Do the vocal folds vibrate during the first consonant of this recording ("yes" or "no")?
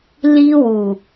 yes